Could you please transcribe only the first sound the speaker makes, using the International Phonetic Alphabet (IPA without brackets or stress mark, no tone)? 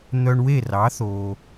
n̪